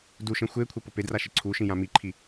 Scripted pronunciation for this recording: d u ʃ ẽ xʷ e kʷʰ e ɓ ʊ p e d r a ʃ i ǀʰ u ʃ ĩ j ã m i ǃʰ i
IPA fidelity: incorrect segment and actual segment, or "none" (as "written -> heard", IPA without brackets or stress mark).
ɓ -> p